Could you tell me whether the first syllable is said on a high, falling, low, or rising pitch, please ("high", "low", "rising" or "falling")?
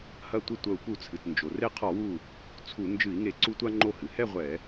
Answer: falling